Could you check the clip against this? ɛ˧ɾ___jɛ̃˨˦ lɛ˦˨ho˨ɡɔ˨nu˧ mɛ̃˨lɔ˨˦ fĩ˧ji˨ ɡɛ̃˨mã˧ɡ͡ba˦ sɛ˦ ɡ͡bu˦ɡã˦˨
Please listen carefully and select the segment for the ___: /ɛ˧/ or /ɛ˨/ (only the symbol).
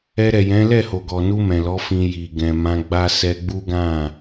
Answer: ɛ˨